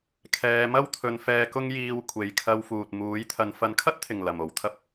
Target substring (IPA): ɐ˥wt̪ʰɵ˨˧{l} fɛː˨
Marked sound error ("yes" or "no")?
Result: yes